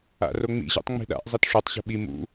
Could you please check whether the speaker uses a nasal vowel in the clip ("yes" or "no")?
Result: no